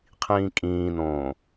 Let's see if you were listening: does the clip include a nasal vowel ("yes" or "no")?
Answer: yes